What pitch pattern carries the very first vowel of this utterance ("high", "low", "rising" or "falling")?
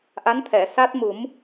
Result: rising